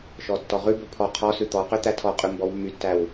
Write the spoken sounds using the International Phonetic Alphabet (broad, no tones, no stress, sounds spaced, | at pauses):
ʃ ɔ tː ɔ ʁ ʉ b ɵ pʰ ɔ qʰ ɔ s ʉ t̪ ɔ q ø t̪ æ tʰ ɔ qʼ ʉ m b ɔ w mː y tː æ w